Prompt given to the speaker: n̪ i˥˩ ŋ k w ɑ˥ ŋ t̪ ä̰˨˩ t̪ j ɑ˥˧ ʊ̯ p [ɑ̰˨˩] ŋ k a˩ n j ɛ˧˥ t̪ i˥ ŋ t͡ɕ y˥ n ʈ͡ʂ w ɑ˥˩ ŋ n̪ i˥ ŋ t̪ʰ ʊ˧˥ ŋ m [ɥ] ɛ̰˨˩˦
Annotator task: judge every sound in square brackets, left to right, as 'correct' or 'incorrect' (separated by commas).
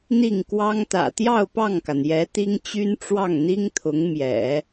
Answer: incorrect, incorrect